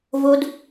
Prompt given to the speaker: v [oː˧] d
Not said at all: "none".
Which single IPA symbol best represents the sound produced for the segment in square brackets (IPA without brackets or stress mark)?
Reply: o˧